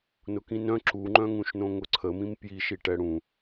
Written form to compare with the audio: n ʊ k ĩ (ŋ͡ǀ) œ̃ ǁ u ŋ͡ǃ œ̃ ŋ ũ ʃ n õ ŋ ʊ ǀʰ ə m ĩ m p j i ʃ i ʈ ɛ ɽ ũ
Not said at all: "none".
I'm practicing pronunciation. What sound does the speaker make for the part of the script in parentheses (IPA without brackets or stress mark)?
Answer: n